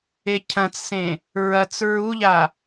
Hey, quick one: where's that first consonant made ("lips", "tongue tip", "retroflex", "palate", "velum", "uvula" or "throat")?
palate